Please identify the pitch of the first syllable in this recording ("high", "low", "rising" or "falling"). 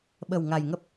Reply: low